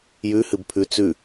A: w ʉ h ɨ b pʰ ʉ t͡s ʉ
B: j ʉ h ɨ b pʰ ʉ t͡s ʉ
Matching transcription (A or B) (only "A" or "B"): B